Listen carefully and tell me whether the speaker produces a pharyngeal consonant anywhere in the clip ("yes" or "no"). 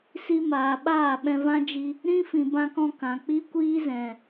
no